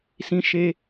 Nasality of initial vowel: nasal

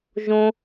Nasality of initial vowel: nasal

